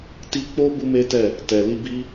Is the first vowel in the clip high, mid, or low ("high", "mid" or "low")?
high